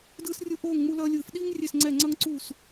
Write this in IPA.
d ɯː˥ s rʲ u˥ ʔ oː˥˧ ŋ ŋ͡m u˥ l ʌː˥ lʲ ɯː˥˧ f ɗ iː˥ ŋ rʲ e˥˧ s ŋ͡ǀ ɛ˥˧ ŋ͡ǀ ʌ˥ ŋ ǀ uː˥˧ s

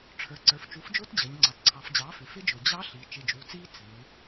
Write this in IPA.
ʈ͡ʂʰ ə˞˩ ǀ ə˞˩ f t͡ʃ u˩˥ f d͡ʒ ʊː˦˥ t d͡ʑ əː˩˧ ɲ ŋ͡ǀ ɑ˩ t ǀʰ ɑ˩˧ f d͡ʑ ɑː˩˥ f ɪ˩˧ f ɪ˦˥ d͡ʒ ʊː˩ d͡ʑ ɑ˦˥ ɬ i˩˧ t͡ʃ ɪ˩˧˩ d͡ʒ uː˩˧ t͡s iː˦˥ t͡s ɪː˩˧

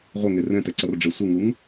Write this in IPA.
ʁʷ ʌ ŋ e r ɛ̃ t ɛ ǀ ʌ r ɖ͡ʐ e sʷ ɯ ŋ u ŋ

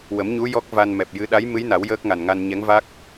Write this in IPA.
w ə˨˩˦ m ɲ u˧˥ j ɔ˦˥ k̚ v a˧ n m ɛ˨˩ p̚ j ɨ˧˥ ɗ a˧˥ j m ɨ˧˥ j n a˨˩˦ w j əː˦˥ k̚ ŋ a˨˩ n ŋ a˧ n ɲ ɛ˧˥ ŋ v a˦˥ k̚

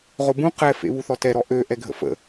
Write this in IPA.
ʁ o b ũ q ɛ f ḛ β u θ ɔ t ɛ ɾ ɔ ʔ ø ʔ ɛ ɡʱ ə̰ f ə̰

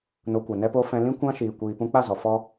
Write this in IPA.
n o˧ kʷ ɛ˨ n ɛ˦ p o˦ f ɛ̃˧ l ĩ˦ kʷ ã˦ ʃ iː˨ kʷ iː˨ p ũ˧ k͡p a˦˨ z ɔ˨ f ɔ˦

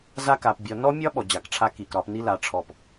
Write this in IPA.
z a˦ k a˨ p bʲ ɒ˨ n ɔ˦ mʲ ɒ˦ ɓ ɔ˨ d͡ʑ a˨ k ʈ͡ʂʰ a˦ k i˨ k ɾ ɒ˦ p n i˦ l a˨ ʈ͡ʂʰ ɔ˦˨ p

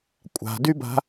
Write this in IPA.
kʷʼ a̤ d y b a̤

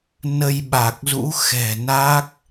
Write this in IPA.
n ə˧ j ɓ a˨˩ k̚ z ṵ˧˥ x ɛ̤˨˩ n a˦˥ k̚

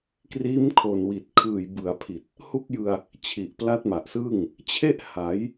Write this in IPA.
k r iː˦˥ m kʰ oː˨˩ n w i˨˩ t̚ kʰ ɯː˨˩ j b ɯ˩˦ a̯ pʰ i˨˩ t̚ | h u˥˩ k̚ j ɯ˧ a̯ | t͡ɕʰ i˨˩ ʔ p l a˦˥ t̚ m a˨˩ ʔ s ɯː˥˩ ŋ | t͡ɕʰ e˥˩ ʔ h a˩˦ j

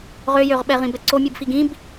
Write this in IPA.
ʁ ø j ø ʁ ɓ ɛ ʁ ĩ b ɛ ǀ o mʲ ɯ b f i ɡ ĩ b

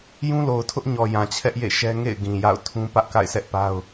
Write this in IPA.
j ũ˦ l o˨ ʊ̯ tʰ ʊ˦ ʔ ɲ ɔ˨ j ã˨ t͡ɕʰ ɛ˦ ʔ j ḛ˦˨ ʃ ɛ˦ ŋ ḛ˦˨ ɪ̯ ɡ ĩ˨ j a̰˦˨ ʊ̯ tʰ ũ˦ p ä˦ ʔ k a̰˦˨ ɪ̯ s ɛ˦ ʔ p a˦ ʊ̯

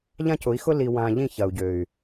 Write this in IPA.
ʎ ã˦ c ʊ˨˦ i̯ x ʊ˦ l i˨ w ã˨ ʎ ĩ˦˨ ç ɐ˨ u̯ ɟ ø˨ y̯

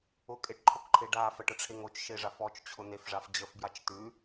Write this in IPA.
ʊ kʼ e ʈ ǃʰ o k ǃʰ e ɖ a f ə ʈ ə ʈ͡ʂʰ e ŋ o t͡ʃ ʃ e ʐ a f ɔ t͡ʃ t͡ɕʰ ʊ n̪ e f ʐ a f d͡ʑ ə f b j a t͡ʃ t̪ ʉ

